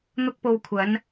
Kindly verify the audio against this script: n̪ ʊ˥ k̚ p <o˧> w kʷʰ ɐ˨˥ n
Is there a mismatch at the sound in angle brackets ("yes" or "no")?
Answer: no